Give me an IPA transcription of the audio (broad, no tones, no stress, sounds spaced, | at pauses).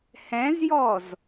h ɛ̃ z j ɔ z